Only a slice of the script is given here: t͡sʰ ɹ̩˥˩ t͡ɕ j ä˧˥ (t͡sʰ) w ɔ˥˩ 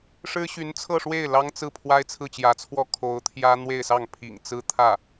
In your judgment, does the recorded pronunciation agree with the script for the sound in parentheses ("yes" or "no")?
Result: yes